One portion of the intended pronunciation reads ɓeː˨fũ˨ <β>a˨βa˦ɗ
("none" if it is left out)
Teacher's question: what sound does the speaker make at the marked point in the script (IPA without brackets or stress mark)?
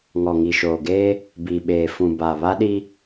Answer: b